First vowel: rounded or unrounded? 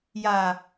unrounded